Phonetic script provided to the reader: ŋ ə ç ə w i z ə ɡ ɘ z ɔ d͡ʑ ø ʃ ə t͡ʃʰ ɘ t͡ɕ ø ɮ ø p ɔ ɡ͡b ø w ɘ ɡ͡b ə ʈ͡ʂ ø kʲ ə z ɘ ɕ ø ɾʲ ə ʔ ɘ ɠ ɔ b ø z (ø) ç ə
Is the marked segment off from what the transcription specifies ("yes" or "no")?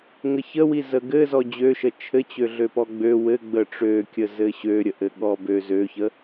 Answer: no